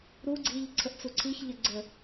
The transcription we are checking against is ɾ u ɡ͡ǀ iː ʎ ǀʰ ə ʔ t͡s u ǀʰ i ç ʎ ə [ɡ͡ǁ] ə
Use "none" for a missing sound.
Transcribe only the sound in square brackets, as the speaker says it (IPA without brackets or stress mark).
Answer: ɡ͡ǀ